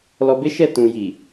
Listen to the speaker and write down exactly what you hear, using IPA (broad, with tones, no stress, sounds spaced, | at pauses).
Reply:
l ɔ˧ b e˦ ʃ ɛ˦˨ t ũ˨ j i˨